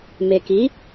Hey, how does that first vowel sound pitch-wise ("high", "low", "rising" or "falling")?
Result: low